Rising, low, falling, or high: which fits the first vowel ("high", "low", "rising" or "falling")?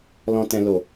low